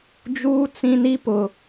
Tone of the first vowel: high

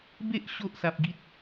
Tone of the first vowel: high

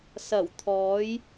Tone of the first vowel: low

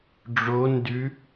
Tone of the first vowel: rising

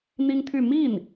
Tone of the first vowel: high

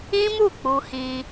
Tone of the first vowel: high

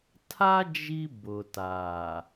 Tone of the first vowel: high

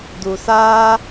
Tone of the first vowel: low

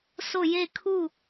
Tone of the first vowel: falling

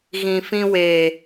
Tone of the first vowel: low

